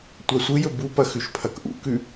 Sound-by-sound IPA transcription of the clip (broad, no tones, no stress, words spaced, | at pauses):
tʷasʷɨjɵ bupɐ xʉʃpʰɐkʔṵkʉ